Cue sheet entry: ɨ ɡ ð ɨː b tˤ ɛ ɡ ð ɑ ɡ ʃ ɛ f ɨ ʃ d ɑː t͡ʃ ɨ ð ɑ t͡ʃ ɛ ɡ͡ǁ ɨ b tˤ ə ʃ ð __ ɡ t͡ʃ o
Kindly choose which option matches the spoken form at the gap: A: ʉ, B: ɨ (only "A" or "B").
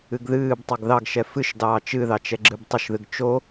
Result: B